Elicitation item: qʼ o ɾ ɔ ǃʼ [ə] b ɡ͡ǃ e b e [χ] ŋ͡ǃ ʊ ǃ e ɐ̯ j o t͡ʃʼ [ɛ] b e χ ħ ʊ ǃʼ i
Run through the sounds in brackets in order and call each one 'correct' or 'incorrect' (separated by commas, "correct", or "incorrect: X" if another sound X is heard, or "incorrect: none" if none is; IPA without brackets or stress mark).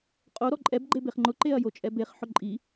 incorrect: ɛ, correct, correct